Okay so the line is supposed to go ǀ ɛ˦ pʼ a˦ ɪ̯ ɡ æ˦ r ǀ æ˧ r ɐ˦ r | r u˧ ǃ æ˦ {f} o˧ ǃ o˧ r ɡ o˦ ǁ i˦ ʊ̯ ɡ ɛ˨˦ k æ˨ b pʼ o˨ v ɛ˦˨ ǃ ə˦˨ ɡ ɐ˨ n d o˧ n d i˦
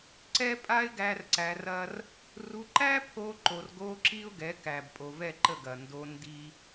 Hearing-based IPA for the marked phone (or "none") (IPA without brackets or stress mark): pʰ